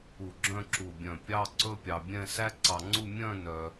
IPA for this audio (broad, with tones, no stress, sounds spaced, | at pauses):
u˧˩ ɡ͡ǁ œ̃˥˧ ǁ u˧˩ bʲ œ̃˧˩ pʲ ɑ˥ ǀ ɵ˥ pʲ ɑ˧ bʲ ɛ̃˥˧ s æ˥ ǀ ɑ˧ ŋ͡ǀ u˥˧ mʲ œ̃˥˧ n œ˧